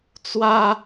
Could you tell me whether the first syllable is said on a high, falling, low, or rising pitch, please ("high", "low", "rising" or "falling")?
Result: high